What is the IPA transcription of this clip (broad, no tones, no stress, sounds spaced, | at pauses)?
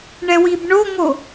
ɳ ɛ w i b ɳ o ŋ o